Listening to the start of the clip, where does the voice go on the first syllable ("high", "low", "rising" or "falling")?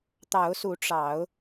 rising